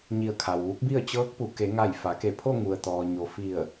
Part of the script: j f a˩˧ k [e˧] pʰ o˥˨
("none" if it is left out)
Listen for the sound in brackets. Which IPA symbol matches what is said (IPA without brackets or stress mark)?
e˧˩